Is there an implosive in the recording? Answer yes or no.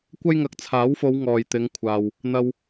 no